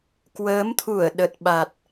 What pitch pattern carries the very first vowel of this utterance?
rising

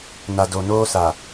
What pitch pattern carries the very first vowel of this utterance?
low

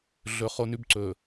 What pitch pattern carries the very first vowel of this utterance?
low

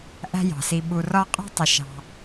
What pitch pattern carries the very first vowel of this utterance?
high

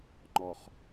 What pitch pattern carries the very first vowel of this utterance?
low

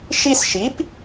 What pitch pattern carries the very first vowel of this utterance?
high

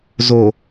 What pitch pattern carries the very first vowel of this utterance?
low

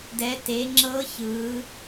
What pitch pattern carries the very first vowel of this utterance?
rising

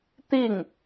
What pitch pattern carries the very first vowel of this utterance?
falling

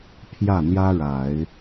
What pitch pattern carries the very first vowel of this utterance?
falling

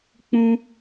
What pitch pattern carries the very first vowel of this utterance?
high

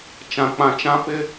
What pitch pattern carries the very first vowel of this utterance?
low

